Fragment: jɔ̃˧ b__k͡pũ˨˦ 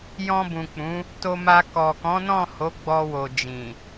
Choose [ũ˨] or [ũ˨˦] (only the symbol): ũ˨